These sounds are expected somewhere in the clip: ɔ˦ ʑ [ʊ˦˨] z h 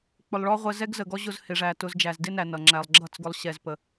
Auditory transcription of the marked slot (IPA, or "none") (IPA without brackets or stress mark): ʊ˧